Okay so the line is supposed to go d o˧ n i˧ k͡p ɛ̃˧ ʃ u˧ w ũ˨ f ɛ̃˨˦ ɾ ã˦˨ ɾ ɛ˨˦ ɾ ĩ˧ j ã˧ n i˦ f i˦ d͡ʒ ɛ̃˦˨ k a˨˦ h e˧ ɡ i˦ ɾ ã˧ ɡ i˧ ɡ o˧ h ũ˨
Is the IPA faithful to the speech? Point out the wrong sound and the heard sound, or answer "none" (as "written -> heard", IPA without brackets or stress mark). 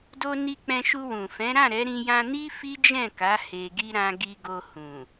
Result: none